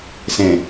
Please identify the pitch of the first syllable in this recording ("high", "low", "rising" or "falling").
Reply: low